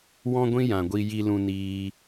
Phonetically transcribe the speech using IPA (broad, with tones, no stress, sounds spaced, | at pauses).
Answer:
w ɔ̃˦ ɡʷ ĩ˦ j ã˨ ɡʷ i˧ j i˧ l ũ˧ n iː˧